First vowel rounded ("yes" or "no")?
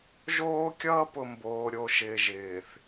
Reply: yes